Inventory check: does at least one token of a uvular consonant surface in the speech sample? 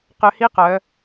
yes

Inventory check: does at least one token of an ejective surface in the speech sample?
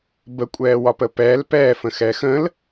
yes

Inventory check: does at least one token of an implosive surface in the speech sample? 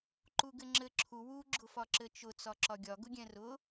no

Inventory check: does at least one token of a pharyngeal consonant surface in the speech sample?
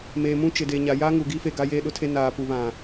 no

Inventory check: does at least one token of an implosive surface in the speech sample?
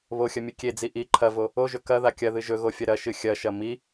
no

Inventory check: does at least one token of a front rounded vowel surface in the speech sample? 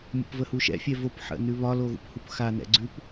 no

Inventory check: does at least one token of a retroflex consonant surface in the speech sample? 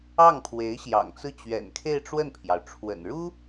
yes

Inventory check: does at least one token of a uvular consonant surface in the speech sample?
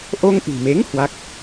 no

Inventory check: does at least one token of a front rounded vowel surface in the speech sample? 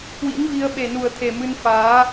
no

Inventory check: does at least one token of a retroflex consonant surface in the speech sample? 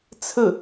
no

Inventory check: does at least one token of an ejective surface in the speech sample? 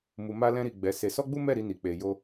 no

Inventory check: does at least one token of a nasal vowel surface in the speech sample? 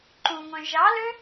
yes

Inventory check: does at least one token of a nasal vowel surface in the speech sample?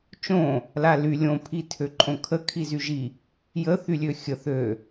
yes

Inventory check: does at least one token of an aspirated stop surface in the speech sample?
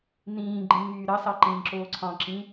yes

